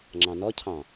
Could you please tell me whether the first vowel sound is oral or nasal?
nasal